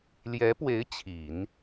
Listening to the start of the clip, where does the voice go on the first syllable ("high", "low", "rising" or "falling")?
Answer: rising